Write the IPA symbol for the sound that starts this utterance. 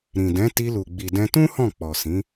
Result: ɾ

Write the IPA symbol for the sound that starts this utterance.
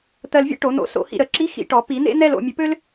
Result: t̪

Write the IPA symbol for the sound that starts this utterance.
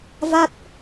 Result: v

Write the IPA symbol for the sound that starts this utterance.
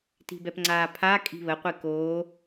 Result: t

